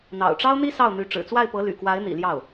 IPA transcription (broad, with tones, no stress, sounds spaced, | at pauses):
n̪ ɑ̰˨˩ ʊ̯ ʈ͡ʂ ɑ˥ ʊ̯ n̪ i˥ s ɑ˥˩ ʊ̯ n̪ y˧˥ ʈ͡ʂ ɻ̩˨˩ t͡s w a˥˩ ɪ̯ p ɤ˧˥ l y̰˨˩ k w a˧˥ ɪ̯ n̪ ḭ˨˩ l j ɑ˥˩ ʊ̯